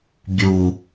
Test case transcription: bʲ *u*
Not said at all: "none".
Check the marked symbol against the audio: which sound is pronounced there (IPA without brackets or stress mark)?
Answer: u